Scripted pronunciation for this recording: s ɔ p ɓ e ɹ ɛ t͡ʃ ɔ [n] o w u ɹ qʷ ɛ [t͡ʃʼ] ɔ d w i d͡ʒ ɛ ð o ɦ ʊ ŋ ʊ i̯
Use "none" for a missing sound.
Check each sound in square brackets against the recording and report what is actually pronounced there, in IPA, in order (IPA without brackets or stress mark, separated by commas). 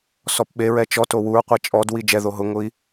t, t͡ʃʼ